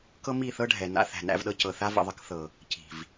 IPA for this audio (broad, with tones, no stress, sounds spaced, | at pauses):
k ɤ˦ m i˦˨ θ ɤ˦ ɖʱ ɛ˨ n a̰˦ θ æ̤˨ n æ̰˦ v ɗ ɤ˦ c ɤ˨ θ a˦ v ə̰˨ ðˤ ə˦ k θ ɤ˨ | c i̤˨ v